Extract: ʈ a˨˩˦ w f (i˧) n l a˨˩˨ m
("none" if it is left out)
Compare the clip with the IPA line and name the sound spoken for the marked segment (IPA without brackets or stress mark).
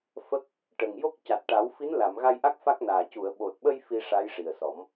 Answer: i˧˥